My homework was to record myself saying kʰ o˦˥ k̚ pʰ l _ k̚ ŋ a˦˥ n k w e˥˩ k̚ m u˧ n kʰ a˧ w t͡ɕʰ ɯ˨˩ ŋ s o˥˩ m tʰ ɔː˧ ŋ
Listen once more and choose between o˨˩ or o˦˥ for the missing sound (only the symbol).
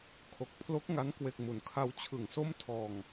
o˦˥